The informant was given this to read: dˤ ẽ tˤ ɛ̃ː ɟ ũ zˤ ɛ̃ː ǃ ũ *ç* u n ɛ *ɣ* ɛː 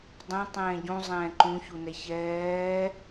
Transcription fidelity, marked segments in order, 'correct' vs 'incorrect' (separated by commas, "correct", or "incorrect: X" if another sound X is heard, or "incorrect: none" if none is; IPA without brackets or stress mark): correct, incorrect: ç